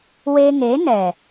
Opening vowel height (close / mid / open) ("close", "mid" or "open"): mid